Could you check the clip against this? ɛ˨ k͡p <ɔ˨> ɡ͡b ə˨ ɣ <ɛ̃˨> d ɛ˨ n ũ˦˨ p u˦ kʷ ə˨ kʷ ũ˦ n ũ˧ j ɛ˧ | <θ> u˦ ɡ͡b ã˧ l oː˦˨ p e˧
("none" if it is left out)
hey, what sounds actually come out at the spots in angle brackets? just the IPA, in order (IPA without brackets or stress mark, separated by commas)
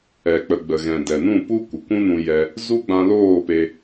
ə˨, ɛ̃˨, z